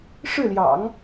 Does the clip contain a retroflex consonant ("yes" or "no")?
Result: yes